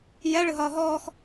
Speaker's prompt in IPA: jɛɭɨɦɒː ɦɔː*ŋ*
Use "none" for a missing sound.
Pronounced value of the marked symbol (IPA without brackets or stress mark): x